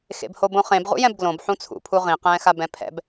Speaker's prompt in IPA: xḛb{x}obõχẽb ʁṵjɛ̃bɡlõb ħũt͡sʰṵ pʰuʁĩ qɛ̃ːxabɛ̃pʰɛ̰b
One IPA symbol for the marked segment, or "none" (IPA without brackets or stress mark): h